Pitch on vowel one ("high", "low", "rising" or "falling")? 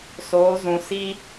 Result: rising